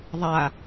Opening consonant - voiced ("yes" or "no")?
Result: yes